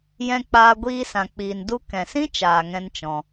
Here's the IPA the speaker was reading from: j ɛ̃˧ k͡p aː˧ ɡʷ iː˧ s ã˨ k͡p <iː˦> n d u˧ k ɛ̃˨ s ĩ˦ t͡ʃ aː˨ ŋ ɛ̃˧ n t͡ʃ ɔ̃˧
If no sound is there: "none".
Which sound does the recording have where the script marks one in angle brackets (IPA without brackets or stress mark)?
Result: iː˨